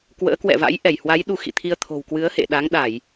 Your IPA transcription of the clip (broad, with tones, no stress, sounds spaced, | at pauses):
k w ə̰ː˧˥ k w ɛ̰˧˨ v a̰˧˥ j ʔ ɛ˧˩ j h w a˨˦ j ɗ u˧ x ḭ˧˨ t̪ʰ i˧ ə̯ t̪ʰ o̤˨˩ w k w ɨ˨˦ ə̯ h ḛ˧˨ ɗ a˨˦ ŋ ɗ a˧˩˨ j